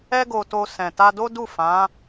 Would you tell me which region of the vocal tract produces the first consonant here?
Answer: velum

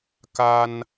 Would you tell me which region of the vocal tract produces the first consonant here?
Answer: velum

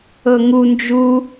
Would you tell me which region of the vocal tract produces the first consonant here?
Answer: velum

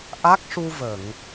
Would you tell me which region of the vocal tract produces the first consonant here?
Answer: throat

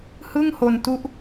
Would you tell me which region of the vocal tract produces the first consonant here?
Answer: throat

